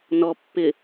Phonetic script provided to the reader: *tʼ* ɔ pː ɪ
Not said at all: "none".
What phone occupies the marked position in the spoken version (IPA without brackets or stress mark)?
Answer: n